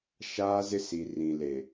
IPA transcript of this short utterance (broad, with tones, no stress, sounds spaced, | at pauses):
ʃ aː˦ z ɪ˦ s i˨ r ĩ˨ l e˨